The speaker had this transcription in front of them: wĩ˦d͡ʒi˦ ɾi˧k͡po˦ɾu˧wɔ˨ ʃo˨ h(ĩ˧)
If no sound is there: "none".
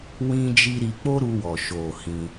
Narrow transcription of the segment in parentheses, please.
ĩ˧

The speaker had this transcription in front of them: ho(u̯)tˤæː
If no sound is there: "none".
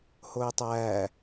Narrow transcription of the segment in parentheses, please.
i̯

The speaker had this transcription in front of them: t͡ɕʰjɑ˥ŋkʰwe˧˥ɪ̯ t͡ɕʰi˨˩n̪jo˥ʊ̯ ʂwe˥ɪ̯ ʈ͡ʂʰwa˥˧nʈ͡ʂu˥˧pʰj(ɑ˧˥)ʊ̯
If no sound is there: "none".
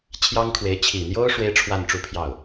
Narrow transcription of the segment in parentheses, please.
ɑ˥˩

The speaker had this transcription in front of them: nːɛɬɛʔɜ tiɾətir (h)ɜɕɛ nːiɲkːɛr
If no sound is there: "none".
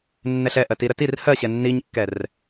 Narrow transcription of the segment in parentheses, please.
h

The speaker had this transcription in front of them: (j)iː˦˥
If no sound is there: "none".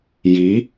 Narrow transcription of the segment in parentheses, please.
j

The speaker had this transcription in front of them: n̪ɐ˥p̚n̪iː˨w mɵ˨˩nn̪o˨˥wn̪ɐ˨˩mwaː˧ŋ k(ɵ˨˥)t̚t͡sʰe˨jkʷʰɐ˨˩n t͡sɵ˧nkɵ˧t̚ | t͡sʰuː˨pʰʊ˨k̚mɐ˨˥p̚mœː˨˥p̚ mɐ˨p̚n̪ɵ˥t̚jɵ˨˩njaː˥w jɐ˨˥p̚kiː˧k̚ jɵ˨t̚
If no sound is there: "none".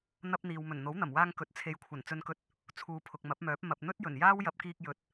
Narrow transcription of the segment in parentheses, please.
ɵ˨˥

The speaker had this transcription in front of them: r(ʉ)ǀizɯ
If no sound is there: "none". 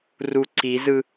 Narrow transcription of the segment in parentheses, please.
u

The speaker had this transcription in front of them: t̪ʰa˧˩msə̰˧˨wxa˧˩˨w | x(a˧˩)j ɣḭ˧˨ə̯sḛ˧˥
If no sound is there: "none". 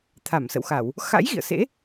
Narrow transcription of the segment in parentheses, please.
a̰˧˥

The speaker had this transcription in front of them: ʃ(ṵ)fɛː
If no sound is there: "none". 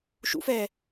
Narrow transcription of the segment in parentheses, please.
ṵ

